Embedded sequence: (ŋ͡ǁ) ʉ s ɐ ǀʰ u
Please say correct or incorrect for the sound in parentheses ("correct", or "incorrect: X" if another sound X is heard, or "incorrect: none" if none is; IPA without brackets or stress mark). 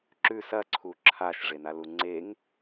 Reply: incorrect: ǁ